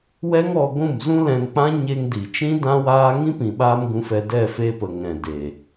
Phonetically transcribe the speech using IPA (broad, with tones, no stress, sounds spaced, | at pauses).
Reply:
w ɛ˦ ŋ ɔ˧ ɡʷ ũ˦˨ m z ũ˦ l ɛ̃˧ n k͡p ã˦ ɲ e˧ ŋ d i˨ t͡ʃ ĩ˦ d ã˦ w aː˦ ŋ ĩ˦ p ĩ˨ ɓ aː˧ m ɡ ũ˧ f ɛ˧ d ɛ˦˨ f e˧ p ə˨ ŋ ɛ̃˨ d e˨